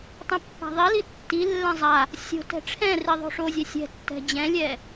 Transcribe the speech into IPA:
tˤ ĩ pː a̤ ðˤ i l i tː i lː ɛ̃ zˤ a | sʲ o̤ t ɛ̤ ʈ͡ʂʰ ɛ̃ r i ðˤ o̤ ʂ o zʲ ɛ sʲ ɛ̤ tː ɛ̤ d͡ʑ ɛ̃ lʲ ɛ

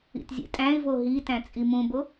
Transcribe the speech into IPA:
ḭ t zʲ ḛ tʼ æ̃ ɪ̯ v o ɦ i t æ̃ t͡sʼ i m ũ b o

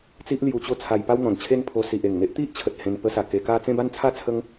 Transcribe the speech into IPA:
t͡s i˦ ʔ l j u˧ t͡ɕ o˥˧ t͡sʰ a˧ j p a˦ w n̪ ɔ̃˨˩ n t͡ɕʰ e˥˧ n pʰ o˧ s i˨ ʔ e˨˩ ŋ n̪ e˦ ʔ t̪ i˦ ʔ t͡ɕʰ ə˨ t̚ h ẽ˧ n p ə˧ s a˨˩ k e˧ k a˥˧ t͡s ẽ˥˧ b a˦ n t͡sʰ a˥˧ t͡sʰ ə˦ ŋ

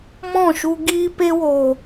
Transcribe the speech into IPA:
m ɔ̃˦˨ ʃ u˧ ɡ iː˧ p e˧ w o˨

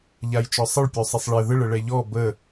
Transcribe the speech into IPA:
ʎ a j t͡ʃ ɔ sˤ ə ɭ pʲ o sˤ ɪ sˤ ɭ ɪ ð ə ɭ ə ɭ ɛ ʎ ɔ b ə

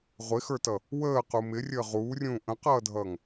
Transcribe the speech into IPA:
ʁʷ ɪ x ə˞ t ʌ | w əː q u m ɪ rʲ əː ʁ uː rʲ ũː ʔ ə̃ q ʌː dʱ ʌː ŋ

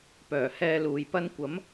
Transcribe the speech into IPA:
p œː˨˩ h ɛː˧ l uː˨ j p ɐ˥ n kʷ ɐ˨˥ m

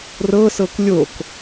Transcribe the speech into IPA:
r ɤ s ɤ k lʲ o k

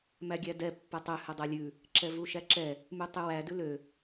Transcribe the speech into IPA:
m æ ɡʲ æ d ɛ pː ɛ tˤ ø h ø dˤ æ lʲ ʉ | ǁ ɛ v u ʃ æ ǁ ɛ | m ʉ tˤ y w æ d ʉ l ø

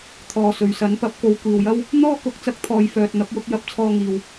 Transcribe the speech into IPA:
t̪ʰ ɔː˨ s ɵ˨˩ ɥ s ɐ˨˥ n p ɐ˨˥ p̚ k o˨ w kʷ iː˨ w j ɐ˥ w | n̪ ɔː˥ k ʊ˨˥ k̚ t͡s ɐ˧ k̚ t̪ʰ ɔː˨ j f œː˨ t̚ n̪ ɐ˨˥ k̚ j ʊ˨˥ k̚ j ɐ˨˥ p̚ t͡sʰ ɔː˧ ŋ iː˨ w

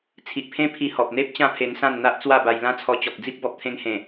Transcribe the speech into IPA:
t͡sʰ i˨ ʔ pʰ ẽ˦ pʰ i˧ h ɔ˨ p̚ n̪ e˦ p̚ t͡ɕ ã˥˧ pʰ e˧ n s ã˥˧ n n̪ a˦ ʔ t͡s w a˥˧ b a˧ j l ã˦ t͡sʰ ɔ˧ t͡ɕ ɔ˨ k̚ d͡z i˦ p̚ b ɔ˨ p̚ t̪ʰ ẽ˧ ŋ h ẽ˨˩

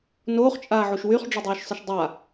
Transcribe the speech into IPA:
n oː χ t͡ʃʼ aː ʕ u ʃ w y χ ɖ͡ʐ o dˤ uː ʃ sˤ ə ʃ dˤ a

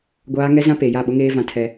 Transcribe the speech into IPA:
ɡʷ aː˦ ŋ ɛ˦ z ã˦ p e˨ j a˦˨ ɓ ʊ˦ ŋ eː˦ v ã˦ tʰ ɛ˦

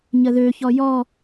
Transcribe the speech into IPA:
ɲ ə ð ø ç ɔ j ɔ

